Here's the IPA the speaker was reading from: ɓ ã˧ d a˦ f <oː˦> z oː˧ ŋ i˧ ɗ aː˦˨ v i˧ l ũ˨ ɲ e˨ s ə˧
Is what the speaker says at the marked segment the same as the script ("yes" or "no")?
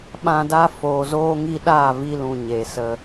no